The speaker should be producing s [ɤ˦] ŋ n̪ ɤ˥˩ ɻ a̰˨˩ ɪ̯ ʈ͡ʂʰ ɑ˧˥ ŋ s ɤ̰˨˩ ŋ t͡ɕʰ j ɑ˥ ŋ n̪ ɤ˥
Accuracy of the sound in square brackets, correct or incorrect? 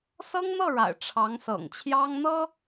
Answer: incorrect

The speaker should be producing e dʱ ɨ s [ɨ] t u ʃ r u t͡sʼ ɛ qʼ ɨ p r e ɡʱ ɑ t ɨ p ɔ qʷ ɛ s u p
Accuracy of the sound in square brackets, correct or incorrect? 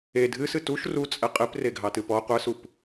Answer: correct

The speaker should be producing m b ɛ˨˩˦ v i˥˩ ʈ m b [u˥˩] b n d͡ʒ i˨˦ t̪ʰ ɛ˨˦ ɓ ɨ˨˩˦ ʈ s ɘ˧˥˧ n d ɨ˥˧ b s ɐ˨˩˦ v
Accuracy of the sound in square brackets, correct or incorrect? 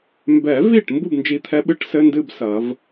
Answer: correct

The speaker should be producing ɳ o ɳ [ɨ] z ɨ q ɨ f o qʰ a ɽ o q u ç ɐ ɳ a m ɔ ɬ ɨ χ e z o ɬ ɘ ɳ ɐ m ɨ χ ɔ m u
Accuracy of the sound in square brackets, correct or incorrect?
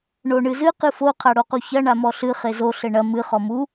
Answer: correct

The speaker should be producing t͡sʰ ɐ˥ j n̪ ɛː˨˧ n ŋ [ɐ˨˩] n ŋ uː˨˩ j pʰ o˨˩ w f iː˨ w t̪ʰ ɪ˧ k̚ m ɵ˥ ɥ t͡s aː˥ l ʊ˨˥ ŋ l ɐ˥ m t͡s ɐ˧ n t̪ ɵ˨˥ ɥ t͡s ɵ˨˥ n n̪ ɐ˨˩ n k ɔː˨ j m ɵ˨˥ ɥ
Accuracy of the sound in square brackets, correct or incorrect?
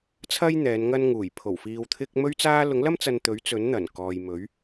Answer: incorrect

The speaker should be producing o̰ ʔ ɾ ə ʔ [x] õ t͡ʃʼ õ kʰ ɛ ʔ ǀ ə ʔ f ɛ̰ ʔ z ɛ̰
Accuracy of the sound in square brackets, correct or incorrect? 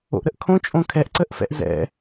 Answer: incorrect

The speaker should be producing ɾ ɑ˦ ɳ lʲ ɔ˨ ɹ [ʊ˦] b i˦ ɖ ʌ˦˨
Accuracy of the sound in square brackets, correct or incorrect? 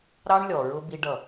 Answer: correct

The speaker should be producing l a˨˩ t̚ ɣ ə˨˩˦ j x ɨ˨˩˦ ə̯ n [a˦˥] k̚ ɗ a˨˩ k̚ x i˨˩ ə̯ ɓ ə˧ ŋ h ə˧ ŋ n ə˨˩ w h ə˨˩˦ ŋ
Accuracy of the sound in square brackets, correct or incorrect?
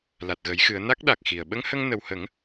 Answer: correct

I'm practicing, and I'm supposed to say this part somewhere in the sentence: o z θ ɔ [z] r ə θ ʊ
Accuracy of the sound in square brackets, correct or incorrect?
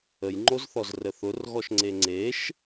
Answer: correct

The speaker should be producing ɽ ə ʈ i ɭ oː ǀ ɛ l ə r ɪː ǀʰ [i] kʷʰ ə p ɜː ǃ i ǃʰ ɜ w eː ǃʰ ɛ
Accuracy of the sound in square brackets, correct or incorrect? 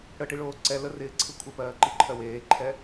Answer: incorrect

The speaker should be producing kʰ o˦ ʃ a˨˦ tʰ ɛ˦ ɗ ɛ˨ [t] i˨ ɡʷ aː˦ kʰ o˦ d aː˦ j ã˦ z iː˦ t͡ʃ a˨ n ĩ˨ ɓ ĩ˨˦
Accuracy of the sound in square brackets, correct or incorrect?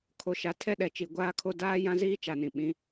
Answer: incorrect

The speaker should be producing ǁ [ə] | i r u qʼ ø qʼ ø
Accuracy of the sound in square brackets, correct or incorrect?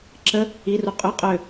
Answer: correct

